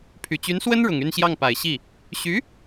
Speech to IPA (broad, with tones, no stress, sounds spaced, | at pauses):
pʰ y˨˩ t͡ɕ y˧˥ n s w ə˥ n ɻ ʊ˨˩ ŋ y˥˧ n ɕ j ɑ˥˩ ŋ p a˨˩ ɪ̯ ɕ i˥˩ | ɕ y˧˥